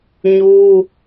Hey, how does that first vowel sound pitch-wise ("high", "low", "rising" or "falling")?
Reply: high